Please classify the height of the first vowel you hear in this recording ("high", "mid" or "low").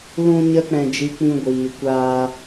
high